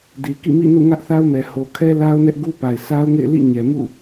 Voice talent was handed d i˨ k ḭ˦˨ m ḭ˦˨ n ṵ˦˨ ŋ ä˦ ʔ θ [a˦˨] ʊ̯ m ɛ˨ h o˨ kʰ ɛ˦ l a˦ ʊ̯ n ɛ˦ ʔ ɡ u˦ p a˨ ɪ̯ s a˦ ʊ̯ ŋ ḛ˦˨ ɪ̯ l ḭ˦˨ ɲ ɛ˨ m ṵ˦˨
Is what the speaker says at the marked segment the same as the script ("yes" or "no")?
no